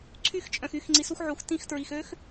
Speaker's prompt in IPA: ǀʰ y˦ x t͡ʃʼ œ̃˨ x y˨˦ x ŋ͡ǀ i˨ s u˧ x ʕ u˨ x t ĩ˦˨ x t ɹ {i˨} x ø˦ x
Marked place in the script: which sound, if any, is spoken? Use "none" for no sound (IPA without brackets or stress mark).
i˨